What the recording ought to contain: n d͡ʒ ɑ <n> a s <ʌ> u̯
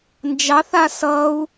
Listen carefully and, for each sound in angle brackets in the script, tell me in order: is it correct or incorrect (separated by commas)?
incorrect, correct